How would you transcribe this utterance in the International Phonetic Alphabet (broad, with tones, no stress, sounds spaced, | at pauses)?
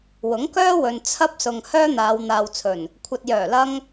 w ʊ˨˥ ŋ k œː˥ w ɵ˨ n t͡sʰ ɐ˧ p̚ s ʊ˨ ŋ h œː˥ n̪ aː˨˧ w n̪ aː˨ w t͡sʰ ɵ˨˩ n | kʷʰ ɐ˨ t̚ j œː˨˩ l ɐ˧ ŋ